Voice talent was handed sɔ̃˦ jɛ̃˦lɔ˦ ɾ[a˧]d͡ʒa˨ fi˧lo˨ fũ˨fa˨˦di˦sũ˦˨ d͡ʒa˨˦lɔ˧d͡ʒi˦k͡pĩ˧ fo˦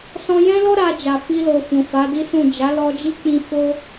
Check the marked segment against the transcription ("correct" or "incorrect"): correct